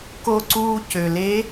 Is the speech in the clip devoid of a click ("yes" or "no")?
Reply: no